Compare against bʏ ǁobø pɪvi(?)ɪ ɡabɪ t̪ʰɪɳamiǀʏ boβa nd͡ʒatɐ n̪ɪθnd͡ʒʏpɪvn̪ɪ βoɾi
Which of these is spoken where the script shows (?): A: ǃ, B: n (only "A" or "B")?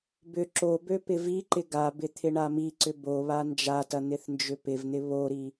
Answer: A